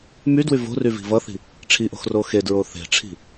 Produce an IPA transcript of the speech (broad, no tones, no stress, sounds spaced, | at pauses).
m y d w y v o̤ r y v i̤ v ʌ θ i̤ | ʈ͡ʂʰ i ʔ o̤ x r o x e d ɹ o θ e̤ ʈ͡ʂʰ i̤